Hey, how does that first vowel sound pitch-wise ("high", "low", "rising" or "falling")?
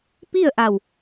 falling